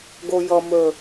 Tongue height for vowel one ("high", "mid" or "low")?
mid